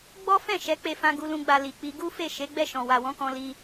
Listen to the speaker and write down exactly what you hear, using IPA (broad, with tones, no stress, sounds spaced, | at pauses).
ɡ͡b ɔ˦ f ɛ̃˦˨ ʃ ɛ˨˦ k͡p e˧ f ã˧ ɡ u˧ l ũ˧ ɡ͡b a˧ l i˨ k͡p i˧ ɡ u˦ f e˦˨ ʃ e˨˦ ɡ͡b ɛ˦˨ ʃ ɔ̃˨ w a˨ w ɔ̃˨˦ k ɔ̃˧ l i˧